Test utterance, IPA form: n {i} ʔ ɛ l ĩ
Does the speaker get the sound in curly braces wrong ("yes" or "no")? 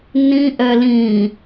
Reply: yes